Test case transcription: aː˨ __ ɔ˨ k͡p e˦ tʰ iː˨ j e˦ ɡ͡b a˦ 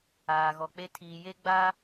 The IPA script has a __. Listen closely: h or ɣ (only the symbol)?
ɣ